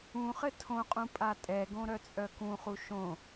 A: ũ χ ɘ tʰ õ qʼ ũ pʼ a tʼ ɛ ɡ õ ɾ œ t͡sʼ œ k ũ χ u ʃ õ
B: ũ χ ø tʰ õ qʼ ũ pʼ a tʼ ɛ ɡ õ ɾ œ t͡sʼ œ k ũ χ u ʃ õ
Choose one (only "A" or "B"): A